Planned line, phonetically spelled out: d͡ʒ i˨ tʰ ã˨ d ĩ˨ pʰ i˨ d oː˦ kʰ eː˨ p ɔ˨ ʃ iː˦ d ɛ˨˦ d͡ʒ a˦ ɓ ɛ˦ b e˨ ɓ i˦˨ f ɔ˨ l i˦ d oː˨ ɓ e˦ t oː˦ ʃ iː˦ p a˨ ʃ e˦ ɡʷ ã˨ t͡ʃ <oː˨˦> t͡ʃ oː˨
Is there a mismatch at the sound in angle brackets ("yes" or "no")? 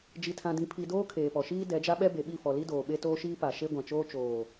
yes